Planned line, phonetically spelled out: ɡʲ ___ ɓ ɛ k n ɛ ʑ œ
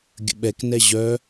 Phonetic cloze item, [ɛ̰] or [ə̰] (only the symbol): ə̰